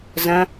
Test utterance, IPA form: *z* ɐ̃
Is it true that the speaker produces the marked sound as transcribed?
yes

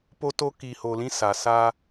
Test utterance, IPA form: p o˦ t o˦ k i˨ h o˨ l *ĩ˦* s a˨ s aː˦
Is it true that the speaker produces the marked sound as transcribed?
yes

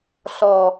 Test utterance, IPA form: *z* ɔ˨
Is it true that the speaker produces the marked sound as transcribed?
no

